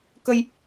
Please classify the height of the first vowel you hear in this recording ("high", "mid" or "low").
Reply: mid